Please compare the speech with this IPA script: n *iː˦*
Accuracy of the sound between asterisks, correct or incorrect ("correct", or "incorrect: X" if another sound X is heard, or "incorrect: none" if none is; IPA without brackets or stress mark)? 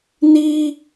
correct